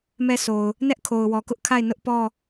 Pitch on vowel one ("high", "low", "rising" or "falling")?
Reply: falling